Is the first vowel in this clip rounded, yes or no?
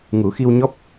yes